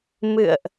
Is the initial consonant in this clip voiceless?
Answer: no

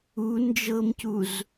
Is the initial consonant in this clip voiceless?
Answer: no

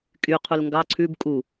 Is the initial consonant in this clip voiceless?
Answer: yes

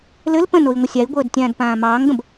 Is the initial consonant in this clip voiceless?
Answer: no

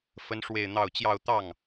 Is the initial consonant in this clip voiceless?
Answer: yes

